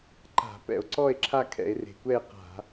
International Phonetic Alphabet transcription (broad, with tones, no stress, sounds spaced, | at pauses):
ǃ a̤˧˩˧ p ɛ̰˧˩˧ o̯ ǀ ɔ˥˧ e̯ ǁʰ a˥˧ kʰ ɛ̰˧˩˧ e̯ r e̤˩ kʷ ɛ˥˧ e̯ q a̤˧˩˧